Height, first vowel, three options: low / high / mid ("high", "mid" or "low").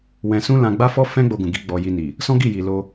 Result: mid